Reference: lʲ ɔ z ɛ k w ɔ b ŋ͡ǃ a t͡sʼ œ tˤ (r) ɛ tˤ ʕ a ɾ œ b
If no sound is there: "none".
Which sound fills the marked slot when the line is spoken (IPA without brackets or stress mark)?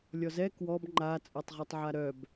ʁ